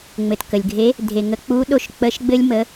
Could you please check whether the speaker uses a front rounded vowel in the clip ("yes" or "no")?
no